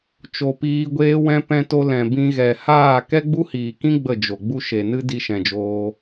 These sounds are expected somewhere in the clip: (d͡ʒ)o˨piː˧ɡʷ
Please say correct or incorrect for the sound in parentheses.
incorrect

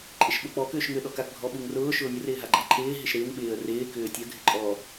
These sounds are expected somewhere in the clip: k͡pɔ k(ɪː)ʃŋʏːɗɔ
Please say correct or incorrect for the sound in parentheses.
incorrect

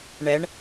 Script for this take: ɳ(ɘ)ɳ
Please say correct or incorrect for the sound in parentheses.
incorrect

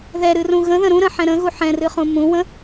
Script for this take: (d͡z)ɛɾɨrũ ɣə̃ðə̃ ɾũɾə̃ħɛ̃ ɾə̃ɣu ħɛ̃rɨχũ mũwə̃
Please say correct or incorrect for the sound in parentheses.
incorrect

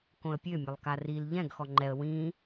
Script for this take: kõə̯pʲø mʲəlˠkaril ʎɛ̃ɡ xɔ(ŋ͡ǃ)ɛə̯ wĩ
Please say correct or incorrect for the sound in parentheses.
correct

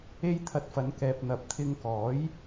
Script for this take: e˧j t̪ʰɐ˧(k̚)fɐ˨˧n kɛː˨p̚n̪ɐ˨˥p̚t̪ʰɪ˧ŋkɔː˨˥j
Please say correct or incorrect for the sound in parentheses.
incorrect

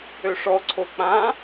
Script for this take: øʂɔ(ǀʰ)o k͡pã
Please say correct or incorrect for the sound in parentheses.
correct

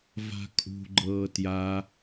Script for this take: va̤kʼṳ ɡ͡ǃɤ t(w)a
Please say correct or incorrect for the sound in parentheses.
incorrect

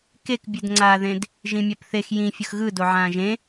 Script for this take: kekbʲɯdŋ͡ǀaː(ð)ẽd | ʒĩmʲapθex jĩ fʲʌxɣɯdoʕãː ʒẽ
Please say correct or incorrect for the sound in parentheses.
correct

